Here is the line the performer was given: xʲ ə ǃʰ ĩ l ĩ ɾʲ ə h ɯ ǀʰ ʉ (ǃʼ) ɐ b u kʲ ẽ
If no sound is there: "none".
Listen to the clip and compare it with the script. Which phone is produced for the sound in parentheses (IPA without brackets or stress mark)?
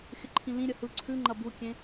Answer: ŋ͡ǃ